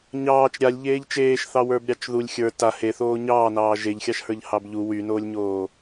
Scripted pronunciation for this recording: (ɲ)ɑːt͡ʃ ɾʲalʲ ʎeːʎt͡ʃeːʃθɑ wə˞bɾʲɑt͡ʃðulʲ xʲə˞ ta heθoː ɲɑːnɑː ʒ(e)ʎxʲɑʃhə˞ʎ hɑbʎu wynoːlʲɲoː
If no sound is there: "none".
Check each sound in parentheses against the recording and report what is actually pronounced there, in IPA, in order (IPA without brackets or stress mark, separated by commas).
ɲ, e